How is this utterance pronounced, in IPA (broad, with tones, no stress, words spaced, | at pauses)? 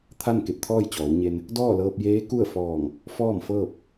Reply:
t̪ʰa˥˨nke˧˩p̚t̪ʰɔː˥˨jt͡ɕɔː˩˧w ɲe˧n | dɔː˥˨lɤː˧p̚jeː˧˥ ku˥˨ə̯fɔː˧˩ŋ | fɔː˥˨mfɤː˥˨p̚